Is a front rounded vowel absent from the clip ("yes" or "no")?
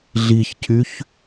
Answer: no